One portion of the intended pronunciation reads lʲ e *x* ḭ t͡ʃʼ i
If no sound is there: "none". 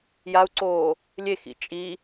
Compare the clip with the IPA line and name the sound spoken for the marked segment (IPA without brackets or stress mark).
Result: x